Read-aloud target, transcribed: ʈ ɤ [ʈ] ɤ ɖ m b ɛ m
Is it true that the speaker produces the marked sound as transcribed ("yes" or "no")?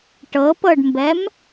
no